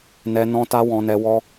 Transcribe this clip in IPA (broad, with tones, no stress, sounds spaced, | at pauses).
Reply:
n ɛ˧ n ɔ̃˦ t a˦ w ɔ̃˧ n ɛ˧ w ɔ˧